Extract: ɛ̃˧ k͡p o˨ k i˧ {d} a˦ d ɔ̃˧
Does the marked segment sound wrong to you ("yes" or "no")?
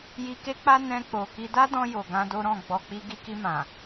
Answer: no